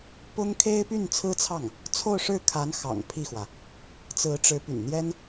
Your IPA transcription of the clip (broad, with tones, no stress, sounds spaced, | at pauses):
p ʊ˥ ŋ kʰ e˥ ɪ̯ p y˥˩ n t͡sʰ ɹ̩˥ t͡sʰ ɑ˥˩ ŋ | t͡sʰ o˥˧ ʊ̯ ʂ ɻ̩˥˩ kʰ a˧˥ n x ɑ̰˨˩ ŋ pʰ i˥˩ x w ä˩ | t͡s ɹ̩˧˥ ʈ͡ʂ ɻ̩˧˥ p y̰˨˩ n n̪ j ɛ˥ n